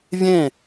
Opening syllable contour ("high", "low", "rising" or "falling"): falling